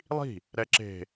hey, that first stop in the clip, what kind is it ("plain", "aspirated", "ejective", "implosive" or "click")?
click